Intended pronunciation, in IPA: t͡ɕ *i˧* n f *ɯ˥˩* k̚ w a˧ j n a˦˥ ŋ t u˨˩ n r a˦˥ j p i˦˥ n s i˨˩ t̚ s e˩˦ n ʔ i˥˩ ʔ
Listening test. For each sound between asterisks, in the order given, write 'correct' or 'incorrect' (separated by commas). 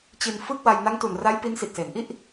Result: correct, correct